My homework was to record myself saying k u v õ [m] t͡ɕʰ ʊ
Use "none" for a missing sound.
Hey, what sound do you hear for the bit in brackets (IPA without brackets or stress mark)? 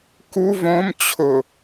m